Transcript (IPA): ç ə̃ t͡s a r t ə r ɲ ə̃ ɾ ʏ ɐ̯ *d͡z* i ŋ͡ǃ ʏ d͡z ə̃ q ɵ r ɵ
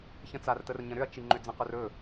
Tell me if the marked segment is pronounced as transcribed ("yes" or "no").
no